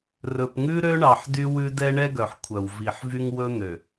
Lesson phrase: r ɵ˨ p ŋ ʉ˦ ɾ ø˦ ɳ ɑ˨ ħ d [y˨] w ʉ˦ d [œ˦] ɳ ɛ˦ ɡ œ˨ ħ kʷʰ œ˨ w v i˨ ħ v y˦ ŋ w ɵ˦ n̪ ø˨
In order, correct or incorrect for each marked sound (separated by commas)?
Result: incorrect, incorrect